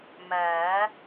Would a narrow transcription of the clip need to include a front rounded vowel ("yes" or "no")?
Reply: no